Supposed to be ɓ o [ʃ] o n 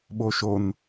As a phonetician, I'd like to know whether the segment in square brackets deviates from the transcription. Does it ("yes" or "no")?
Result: no